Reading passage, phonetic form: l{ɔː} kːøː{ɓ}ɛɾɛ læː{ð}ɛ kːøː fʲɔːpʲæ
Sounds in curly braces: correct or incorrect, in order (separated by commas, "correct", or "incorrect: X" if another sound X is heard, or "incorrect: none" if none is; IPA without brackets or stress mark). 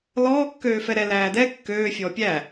correct, incorrect: f, incorrect: d